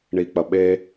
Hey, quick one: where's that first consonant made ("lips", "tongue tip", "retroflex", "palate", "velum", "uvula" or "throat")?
retroflex